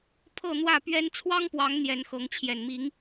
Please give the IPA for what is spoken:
pʰɤ˥˨n̪wä˥˨pɥɛ˦n t͡sʰwɑ˦ŋpwɑ˨˦ŋ n̪jɛ˨˦nxɤ˨˦ŋ t͡ɕʰjɛ˨˩nmi˨˦ŋ

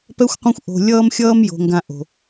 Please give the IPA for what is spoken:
pɛ˥xʷqʷɛ̃˥xʷ ʔo̤˧ lʲʌː˥mxʲʌː˥m jo̤˧ŋɡã˧ ʔo̤˩

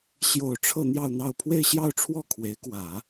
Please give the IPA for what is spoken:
ɕjo˥˧ʊ̯ ʈ͡ʂʰɤ˥˧ n̪jɑ˥˧ʊ̯n̪ɑ˥˧ʊ̯ pʰwe˥˧ɪ̯ɕjɑ˥˧ʊ̯ʈ͡ʂʰwɔ˥˩ kʰwe˧˥ɪ̯ kwä˨˩˦

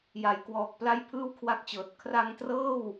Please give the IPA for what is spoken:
ja˨˩jkwɔː˨˩k̚ pla˥˩jpʰɯː˥˩wkʰwa˦˥k̚t͡ɕɤː˨˩t̚ kʰra˧ŋtrɤː˥˩w

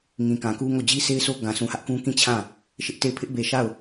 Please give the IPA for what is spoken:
ŋĩ˨ kã˨ku˦ŋo˦˨ d͡ʑi˦sʰe˦ɪ̯sʰo˦ ɡã˨sʰũ˨hä˦ʔkũ˦ kĩ˦˨ t͡ɕʰã˦˨ | ʃɪ˦ʔte˦˨ɪ̯ pʰɪ˦ʔbe˨ʃa˦˨ʊ̯

